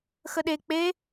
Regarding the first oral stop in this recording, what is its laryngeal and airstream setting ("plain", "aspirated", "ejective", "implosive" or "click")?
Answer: implosive